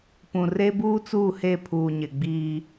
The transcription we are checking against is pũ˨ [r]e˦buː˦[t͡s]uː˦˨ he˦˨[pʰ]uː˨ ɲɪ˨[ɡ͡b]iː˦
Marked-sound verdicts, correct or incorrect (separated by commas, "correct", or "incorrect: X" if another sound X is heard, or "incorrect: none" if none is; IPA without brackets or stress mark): correct, correct, correct, correct